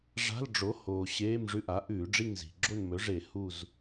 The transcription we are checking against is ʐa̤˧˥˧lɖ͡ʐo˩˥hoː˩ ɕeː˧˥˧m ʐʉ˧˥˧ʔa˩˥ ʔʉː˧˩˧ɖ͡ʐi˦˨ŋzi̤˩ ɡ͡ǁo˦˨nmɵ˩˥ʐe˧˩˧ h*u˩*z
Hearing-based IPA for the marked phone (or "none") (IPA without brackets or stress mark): u˦˨